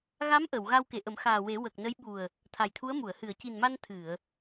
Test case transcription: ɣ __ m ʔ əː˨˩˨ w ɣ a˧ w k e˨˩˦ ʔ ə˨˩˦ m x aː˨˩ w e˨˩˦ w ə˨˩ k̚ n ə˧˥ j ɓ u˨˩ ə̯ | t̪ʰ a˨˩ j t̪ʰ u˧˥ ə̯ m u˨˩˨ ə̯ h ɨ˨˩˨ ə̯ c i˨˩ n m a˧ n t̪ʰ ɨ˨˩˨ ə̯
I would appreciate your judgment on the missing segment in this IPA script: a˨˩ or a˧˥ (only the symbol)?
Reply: a˧˥